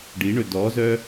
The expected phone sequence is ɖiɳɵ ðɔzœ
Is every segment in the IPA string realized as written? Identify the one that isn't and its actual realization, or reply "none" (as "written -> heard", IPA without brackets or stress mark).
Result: ð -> d